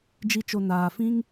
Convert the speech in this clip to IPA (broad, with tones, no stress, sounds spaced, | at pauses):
d͡ʒ i˦ t͡ʃ o˧ n aː˨ f ĩ˦ ŋ